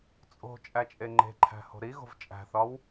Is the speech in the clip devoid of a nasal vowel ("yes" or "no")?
yes